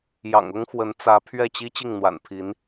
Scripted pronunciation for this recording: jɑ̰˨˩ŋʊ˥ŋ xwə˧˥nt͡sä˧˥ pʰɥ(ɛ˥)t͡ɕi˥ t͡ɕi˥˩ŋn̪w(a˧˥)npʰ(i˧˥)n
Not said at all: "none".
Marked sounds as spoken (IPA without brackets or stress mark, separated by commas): ɛ˥˩, a̰˨˩, i˧˥